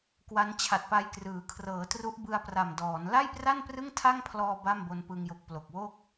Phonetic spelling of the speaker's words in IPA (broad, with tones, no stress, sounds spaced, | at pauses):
k w a˦˥ n t͡ɕʰ a˨˩ t̚ p a˧ j k r ɯː˩˦ kʰ r ɤː˩˦ t r u˦˥ ʔ b ɯ˧ a̯ p r a˨˩ m d ɔː˩˦ n l a˥˩ j p r a˥˩ n p r ɯ˥˩ ŋ tʰ a˥˩ ŋ pʰ l ɔː˧ b a˥˩ m b o˧ n p ɯ˧ ŋ j o˨˩ k̚ p l o˨˩ k̚ w o˥˩ k̚